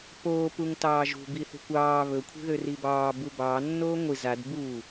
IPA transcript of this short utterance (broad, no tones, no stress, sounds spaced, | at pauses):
p oː p u ŋ t ɑː ʒ ṳ b i θ ṳ kʷ ɑː β ɵ kʷʰ i̤ ð ø r i b ɑː b u b ɑː nː oː ŋʷ i z a d b uː